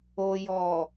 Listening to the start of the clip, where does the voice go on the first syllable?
low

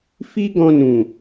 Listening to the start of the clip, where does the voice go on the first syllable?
high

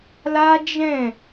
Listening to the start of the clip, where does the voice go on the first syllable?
high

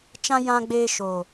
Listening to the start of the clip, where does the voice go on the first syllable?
high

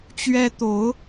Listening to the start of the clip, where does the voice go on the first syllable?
high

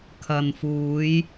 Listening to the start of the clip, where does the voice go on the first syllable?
low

